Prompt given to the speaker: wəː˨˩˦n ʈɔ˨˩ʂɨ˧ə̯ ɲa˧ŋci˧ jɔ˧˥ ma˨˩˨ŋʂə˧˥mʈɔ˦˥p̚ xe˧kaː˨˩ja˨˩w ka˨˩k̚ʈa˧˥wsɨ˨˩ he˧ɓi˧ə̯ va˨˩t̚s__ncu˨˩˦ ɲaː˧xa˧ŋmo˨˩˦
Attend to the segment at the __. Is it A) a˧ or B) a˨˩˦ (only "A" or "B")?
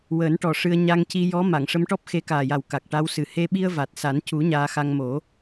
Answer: B